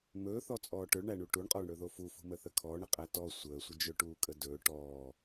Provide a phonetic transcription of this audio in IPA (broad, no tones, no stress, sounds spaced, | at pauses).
m ɵː θ ɔ t͡sʼ ɔː ʈ ɵ ɭ ɳ æ ɳ u ʈ u ɳ qʼ ɔː ɳ ɽ ɵ ð o f u f ṳ m ə θ ə kʰ ɔː ɳ ə qʼ æ t ɔ sʷ əː sʷ ə d͡ʒ ɵ ʈ uː kʼ ə d ɵː ʈ ɔː